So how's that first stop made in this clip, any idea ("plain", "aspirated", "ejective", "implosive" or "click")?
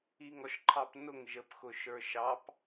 click